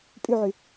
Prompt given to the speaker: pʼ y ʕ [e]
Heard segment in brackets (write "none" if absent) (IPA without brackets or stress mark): y